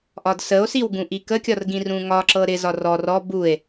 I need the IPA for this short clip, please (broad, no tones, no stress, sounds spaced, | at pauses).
ʔ ɒ d s ə o̯ s i w ɡ ũ ʔ i k ə kʲ ɒ r ɡ ĩ r ũ ŋ ɒ ǁ ɤ ɾ ɪ z ɒ r ɔ r ɔ b u e̯